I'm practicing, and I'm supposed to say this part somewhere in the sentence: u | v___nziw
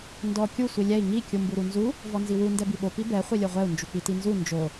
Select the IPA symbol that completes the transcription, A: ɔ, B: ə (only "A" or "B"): A